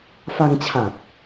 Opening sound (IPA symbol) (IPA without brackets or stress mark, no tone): f